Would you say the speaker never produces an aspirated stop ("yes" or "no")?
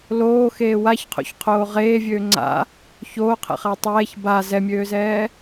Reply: no